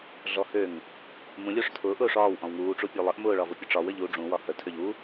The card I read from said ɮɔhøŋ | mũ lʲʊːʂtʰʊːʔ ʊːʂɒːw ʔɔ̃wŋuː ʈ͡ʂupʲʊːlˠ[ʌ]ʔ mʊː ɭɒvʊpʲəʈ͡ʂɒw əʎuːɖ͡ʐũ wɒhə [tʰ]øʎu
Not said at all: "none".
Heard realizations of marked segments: ə, tʰ

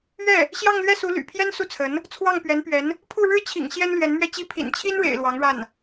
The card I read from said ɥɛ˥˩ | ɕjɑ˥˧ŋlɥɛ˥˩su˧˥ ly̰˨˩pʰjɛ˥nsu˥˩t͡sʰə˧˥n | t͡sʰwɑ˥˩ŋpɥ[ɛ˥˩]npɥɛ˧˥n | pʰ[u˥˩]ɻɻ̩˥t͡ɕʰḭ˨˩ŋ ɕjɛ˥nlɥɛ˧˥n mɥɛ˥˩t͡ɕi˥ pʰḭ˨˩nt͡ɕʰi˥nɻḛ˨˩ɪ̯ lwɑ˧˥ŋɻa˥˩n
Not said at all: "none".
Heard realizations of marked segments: ɛ˧˥, u˥˩

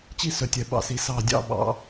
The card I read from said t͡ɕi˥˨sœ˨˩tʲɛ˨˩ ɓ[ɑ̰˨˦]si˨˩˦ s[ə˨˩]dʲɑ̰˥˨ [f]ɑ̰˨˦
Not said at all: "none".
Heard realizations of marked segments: ɑ̰˨˩, ɑ˨˩, ɓ

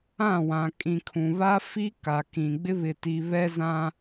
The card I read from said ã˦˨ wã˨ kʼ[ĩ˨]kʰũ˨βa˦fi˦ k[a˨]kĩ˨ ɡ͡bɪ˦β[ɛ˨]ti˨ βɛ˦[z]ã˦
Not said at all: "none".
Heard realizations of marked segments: ĩ˨, a˨, ɪ˨, z

